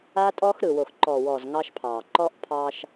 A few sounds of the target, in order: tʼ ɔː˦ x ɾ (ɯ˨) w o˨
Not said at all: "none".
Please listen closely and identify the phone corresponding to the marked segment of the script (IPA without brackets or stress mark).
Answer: ɯ˨